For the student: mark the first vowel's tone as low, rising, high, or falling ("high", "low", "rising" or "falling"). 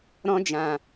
high